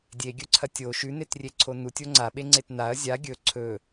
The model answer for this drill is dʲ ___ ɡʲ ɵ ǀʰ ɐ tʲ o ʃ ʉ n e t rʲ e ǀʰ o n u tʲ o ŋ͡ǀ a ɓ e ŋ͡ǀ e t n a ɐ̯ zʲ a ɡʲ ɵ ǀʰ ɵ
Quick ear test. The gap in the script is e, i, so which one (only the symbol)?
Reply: e